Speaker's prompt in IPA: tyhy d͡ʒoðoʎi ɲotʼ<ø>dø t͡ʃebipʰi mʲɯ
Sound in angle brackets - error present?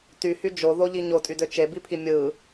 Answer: yes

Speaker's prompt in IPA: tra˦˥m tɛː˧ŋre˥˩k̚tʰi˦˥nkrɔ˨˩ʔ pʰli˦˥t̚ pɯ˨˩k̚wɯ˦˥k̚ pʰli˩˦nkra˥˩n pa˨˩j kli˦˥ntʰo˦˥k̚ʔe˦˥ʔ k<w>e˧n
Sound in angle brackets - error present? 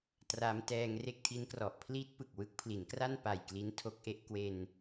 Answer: no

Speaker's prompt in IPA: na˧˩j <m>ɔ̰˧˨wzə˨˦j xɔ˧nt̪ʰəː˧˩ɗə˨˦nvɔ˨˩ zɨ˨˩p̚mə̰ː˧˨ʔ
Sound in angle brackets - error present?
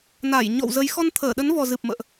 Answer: yes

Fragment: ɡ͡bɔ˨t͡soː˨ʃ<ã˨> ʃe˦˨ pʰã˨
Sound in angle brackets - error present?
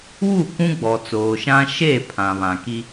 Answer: yes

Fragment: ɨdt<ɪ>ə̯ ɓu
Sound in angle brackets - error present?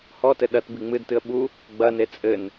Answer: yes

